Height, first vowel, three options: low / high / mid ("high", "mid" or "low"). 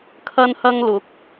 low